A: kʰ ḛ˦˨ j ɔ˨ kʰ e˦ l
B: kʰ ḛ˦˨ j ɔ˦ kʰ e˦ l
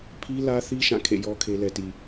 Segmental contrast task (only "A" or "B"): B